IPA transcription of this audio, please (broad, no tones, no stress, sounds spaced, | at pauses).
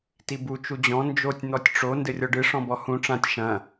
t i b u t͡ʃ u d͡ʑ ɔ̃ n d͡ʒ o tʲ n̪ ɔ tʲ ʈ͡ʂ o n d ɘ rʲ ɔ ɖ ɨ ʂ ɔ̃ b ɔ h ũ ʈ͡ʂ ã tʲ ʃ ɐ̃